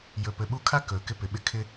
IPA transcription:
j ɵ˨ p ɘ˨ ɓ u˦ kʰ a˥ k ɵ˩ k ɪ˥ p ɪ˩ ɓ ɪ˥ kʰ ɪ˦

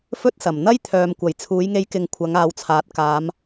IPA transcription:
f ɵ˥ t̚ s ɐ˨˩ m n̪ ɐ˥ j t̪ʰ œː˨ m kʷ ɐ˨˩ j t͡sʰ uː˨˧ j ŋ e˧ j k ɪ˨ ŋ kʷʰ ɐ˨˧ ŋ aː˨˧ w t͡sʰ aː˨˥ t̚ k aː˨˧ m

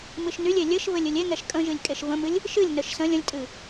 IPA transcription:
m ɨ ʃ n y lʲ e lʲ ɘ ʃ v ɘ lʲ ɨ lʲ e ŋ ɛ ʃ kʼ ə̃ ʒ ɨ lʲ kʼ e ʃ v ə̃ m ɨ lʲ | ʃ ɨ lʲ n ə ʃ s ə̃ lʲ ə̃ lʲ tʼ ɨ

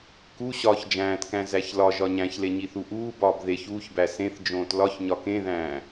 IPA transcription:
k u ɕ ɒː ç d͡ʒ æ̃ː t k æ̃ z æ ç l ɒ ʒ ɒ ɲ æ̃ ç l e ɲ i θ u ʔ uː b ɒː b ð e ç uː ç b æ s ẽ θ d͡ʒ õː t l ɒ ç ɲ ɒ k ẽ ð æ̃ː

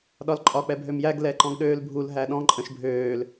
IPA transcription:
ɗ ɒ l ǃʼ ɒ k͡p ɛ bʱ ø m j æ ɡ l ɛ ǃ ɔ̃ ɡ ɗ øː l bʱ u l ɦ æ ɗ ɔ̃ ǃʼ ə̃ ʃ bʱ øː l

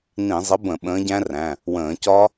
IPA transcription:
n ĩ˧˩˧ zˤ ə˨˥ b ə̃˧˩˧ ɓ ə̃ː˨˥ ɟ æ̃˦˥ r æ̃˩˧˩ | w ə̃ː˧˩˧ c ɒ˦˥

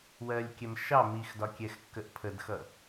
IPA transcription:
w ɜ lʲ kʲ ɛ m ʃ ɑ m i x d ɒ kʲ ɛ x kː ə ʔ pʰ ə d x ʌ

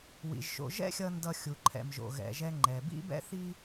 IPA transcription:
w ḭ˩ ʒ ʃ o̰˨ ʒ ɛ̰˦ xʲ ʌ˨ n d ʌ˨ xʲ u˩ ǃʰ ɛ̰˩ m ʒ o̰˩ ɣ ɛ̰˩ ʒ ɛ˨ ŋ͡ǃ ɛ˩ b ḭ˥ b ɛ̰˥ θ i˥

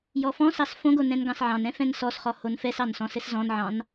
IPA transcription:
j ɔ f ɔ̃ s ɑ s f õ ɡ o n ɛ̃ n ɡ ɑ̃ s ʕ ɑ̃ n ɛ̃ f ɛ̃ n s ɔ s χ ɔ h o n f ɛ s ɑ n s ɔ̃ s ɘ s z ɔ̃ n ʕ ɑ̃ n

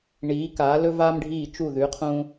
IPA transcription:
ɳ iː˩˧ k aː˩˧ l ɵ˧ v aː˧ m ɖʱ iː˧˩ t͡ʃ u˧˩ ð ʉ˩˧ qʰ ũ˧

